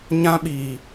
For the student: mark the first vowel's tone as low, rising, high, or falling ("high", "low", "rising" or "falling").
high